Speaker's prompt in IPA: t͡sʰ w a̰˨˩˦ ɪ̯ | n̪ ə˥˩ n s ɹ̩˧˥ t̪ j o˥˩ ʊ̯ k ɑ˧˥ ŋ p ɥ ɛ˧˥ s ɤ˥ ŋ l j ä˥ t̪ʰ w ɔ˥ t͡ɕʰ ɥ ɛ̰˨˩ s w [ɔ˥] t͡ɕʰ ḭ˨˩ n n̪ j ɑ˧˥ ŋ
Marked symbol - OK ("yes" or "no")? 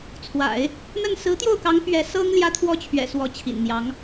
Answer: no